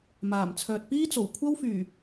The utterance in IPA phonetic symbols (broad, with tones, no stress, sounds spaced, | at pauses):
m aː˨˩ m t͡sʰ œː˨ t̚ p iː˥ t͡s o˨˩ w kʷʰ ɐ˥ w f yː˨˩